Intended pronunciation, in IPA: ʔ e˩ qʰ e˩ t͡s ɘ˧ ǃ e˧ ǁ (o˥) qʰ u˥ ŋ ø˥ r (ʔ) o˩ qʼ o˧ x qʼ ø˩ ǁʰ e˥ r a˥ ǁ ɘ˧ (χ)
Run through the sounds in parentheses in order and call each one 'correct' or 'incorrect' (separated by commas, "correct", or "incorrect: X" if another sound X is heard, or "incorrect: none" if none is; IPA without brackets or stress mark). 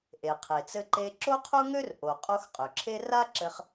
correct, correct, correct